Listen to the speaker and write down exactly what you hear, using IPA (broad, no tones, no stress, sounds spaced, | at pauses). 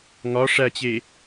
ŋ ɒ ʂ æ t͡ɕ e